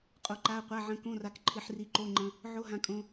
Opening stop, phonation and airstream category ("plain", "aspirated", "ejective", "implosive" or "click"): ejective